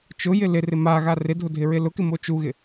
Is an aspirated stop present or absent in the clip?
absent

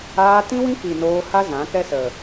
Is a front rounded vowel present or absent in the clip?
absent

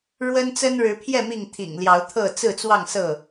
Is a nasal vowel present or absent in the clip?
absent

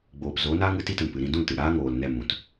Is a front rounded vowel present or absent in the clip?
absent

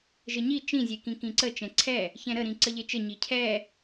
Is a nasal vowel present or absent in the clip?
present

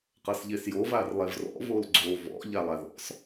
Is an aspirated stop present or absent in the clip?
absent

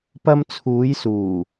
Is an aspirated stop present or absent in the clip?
present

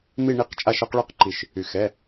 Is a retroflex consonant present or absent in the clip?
present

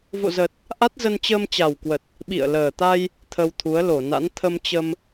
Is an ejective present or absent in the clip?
absent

